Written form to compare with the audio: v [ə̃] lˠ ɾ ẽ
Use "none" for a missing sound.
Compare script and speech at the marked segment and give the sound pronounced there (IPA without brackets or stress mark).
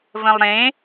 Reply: ə̃